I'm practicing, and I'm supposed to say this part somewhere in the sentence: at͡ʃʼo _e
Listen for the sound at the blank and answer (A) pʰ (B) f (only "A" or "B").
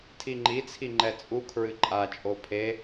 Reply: A